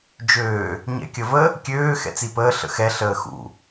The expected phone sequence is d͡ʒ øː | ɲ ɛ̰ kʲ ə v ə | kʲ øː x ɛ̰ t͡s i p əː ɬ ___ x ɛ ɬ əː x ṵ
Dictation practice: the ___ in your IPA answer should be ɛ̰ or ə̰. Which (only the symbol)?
ə̰